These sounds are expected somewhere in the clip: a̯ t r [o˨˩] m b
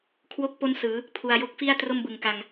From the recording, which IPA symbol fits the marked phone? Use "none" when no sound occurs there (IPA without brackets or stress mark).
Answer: o˥˩